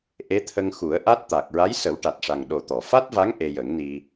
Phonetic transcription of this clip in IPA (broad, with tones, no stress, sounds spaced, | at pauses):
ʔ e˧˥ t̪ʰ ə˧ ŋ x u˨˩˦ ə̯ ʔ a˦˥ t̚ t̪ a˨˩ k̚ ɹ a˧˥ j s ə˨˩˦ w ʈ a˨˩ t̚ ʂ a˨˩ ŋ ɗ o˨˩ t̪ ɔ˨˩˨ f a˦˥ t̚ v a˧˥ ŋ ʔ e˧ j ə˨˩˦ ŋ n i˧